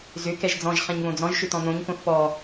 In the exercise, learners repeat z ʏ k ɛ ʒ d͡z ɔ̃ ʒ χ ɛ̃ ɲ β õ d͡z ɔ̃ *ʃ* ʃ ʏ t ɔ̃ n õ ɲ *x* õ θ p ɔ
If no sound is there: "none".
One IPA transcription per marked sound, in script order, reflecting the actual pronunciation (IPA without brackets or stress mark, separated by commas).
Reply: ʒ, k